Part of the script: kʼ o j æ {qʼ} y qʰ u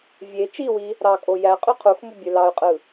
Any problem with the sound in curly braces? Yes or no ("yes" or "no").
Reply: no